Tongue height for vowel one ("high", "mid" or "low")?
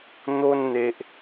mid